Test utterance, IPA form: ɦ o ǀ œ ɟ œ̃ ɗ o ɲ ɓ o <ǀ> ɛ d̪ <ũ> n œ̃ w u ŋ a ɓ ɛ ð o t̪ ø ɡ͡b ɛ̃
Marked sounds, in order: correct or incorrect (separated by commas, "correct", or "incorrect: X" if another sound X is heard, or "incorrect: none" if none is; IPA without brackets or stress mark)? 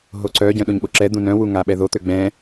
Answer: incorrect: ǁ, correct